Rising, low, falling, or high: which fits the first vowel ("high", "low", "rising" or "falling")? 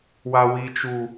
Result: low